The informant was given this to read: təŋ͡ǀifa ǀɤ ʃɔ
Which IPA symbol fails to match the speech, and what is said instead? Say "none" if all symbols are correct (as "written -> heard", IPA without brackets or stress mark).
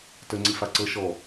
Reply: none